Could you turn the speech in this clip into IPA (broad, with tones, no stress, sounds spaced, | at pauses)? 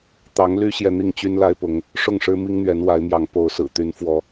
t̪ ɑ˨˦ ŋ l y˦ ɕ j ɛ˨ n̪ i˥˨ ŋ t͡ɕ y˦ n l a˦ ɪ̯ p ʊ˨˦ ŋ | ʂ ʊ˥˨ ŋ ʂ ɻ̩˦ m i˦ ŋ n̪ ɥ ɛ˨˦ n w a˨˦ ɪ̯ m j ɑ˨˦ ŋ p o˨˦ ʊ̯ s ɹ̩˨˩ t̪ y˨˦ n f w ɔ˨˦